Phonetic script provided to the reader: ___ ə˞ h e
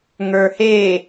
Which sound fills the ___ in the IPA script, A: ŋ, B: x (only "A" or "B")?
A